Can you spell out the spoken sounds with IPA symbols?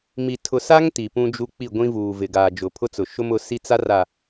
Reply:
mi˨ tʰʊ˨sa˦ŋ ti˨pũ˦d͡ʒu˦ k͡pi˦˨ɡʷĩ˦vuː˨vɪ˨ ɡaː˨d͡ʒʊ˨pʰʊ˦t͡sʊ˨ ʃʊ˦mʊ˨˦si˦t͡sa˦ ra˨

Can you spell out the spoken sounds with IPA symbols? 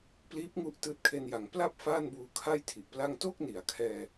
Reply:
pliː˦˥p̚ŋu˦˥ʔ tɯː˦˥t̚kʰe˧nja˩˦ŋ pla˥˩p̚ faː˥˩nbuː˧ kʰa˥˩jtʰi˨˩ʔpla˥˩ŋ to˥˩k̚ni˩˦a̯kʰɛː˧

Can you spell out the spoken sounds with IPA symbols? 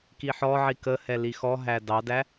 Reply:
kiħɔʕi kəhɛ lixɔɦæ dɑdæ

